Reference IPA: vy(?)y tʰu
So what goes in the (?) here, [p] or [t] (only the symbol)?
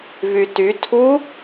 t